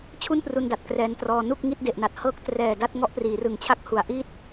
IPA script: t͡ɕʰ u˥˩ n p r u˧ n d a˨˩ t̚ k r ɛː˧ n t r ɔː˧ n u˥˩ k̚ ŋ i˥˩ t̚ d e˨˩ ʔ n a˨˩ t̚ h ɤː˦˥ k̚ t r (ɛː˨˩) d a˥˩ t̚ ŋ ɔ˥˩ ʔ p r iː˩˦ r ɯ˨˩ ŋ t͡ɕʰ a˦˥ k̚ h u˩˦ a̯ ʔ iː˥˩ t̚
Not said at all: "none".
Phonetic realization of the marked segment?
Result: ɛː˨˩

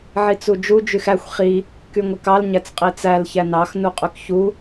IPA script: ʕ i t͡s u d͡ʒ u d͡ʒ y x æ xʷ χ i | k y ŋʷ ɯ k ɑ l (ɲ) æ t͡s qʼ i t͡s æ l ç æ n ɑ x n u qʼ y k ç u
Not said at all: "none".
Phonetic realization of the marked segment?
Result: ɲ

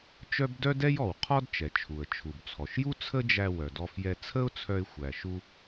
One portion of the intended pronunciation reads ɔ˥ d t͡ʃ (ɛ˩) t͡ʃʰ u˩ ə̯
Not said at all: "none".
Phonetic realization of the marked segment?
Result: ɛ˩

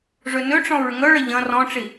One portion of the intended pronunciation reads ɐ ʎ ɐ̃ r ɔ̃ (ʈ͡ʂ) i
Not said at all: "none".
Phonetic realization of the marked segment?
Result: ʈ͡ʂ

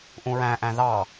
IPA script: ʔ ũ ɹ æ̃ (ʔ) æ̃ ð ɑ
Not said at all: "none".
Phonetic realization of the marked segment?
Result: ʔ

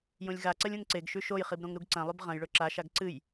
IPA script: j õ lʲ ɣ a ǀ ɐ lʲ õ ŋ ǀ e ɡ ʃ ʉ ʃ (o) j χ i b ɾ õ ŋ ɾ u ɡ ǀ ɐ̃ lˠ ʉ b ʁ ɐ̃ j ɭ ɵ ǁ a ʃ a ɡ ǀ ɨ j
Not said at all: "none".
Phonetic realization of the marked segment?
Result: o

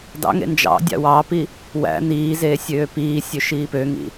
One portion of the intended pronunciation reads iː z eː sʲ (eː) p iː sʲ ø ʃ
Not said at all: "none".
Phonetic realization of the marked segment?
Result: øː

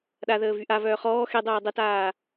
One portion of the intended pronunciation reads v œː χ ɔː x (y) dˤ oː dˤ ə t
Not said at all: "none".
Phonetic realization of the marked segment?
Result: e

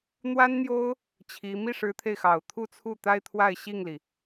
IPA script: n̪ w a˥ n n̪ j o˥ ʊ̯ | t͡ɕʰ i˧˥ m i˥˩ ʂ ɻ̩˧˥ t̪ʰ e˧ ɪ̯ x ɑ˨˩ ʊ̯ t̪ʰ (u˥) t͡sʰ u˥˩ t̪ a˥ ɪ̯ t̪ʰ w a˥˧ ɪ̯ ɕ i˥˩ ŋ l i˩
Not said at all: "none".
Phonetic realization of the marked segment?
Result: u˥˧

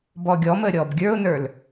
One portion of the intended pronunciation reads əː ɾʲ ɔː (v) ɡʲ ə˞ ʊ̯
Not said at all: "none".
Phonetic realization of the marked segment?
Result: b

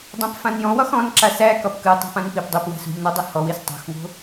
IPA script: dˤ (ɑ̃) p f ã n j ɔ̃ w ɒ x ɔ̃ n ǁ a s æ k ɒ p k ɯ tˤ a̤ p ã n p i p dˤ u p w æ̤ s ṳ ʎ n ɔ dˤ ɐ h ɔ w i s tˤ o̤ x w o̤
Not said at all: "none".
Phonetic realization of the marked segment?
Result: ã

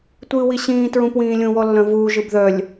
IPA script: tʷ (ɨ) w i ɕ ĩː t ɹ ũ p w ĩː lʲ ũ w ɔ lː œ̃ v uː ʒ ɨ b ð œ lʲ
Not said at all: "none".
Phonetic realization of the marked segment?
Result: ɨː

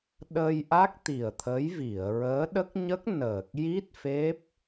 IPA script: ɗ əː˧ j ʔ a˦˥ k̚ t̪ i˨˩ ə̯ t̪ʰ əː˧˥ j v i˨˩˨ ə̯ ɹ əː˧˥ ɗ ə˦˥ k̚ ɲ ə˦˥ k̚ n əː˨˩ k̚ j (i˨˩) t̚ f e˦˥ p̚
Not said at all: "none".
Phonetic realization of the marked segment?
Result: i˦˥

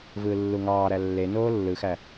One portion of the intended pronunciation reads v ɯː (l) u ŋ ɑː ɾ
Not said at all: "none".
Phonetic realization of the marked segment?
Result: lː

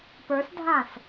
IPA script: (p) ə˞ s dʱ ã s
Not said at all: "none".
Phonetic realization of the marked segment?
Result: p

